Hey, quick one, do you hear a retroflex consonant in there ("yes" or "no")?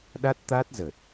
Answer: no